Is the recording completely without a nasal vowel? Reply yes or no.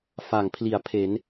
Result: yes